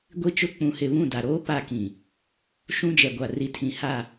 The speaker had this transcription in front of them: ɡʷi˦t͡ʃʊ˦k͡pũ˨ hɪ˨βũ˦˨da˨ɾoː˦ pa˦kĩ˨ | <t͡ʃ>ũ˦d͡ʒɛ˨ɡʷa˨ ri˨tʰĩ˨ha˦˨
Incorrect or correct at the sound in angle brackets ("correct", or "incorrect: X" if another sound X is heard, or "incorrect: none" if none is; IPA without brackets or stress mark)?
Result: incorrect: ʃ